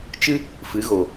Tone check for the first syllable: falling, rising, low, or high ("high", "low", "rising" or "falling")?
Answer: high